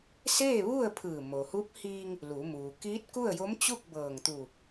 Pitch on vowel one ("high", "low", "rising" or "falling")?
falling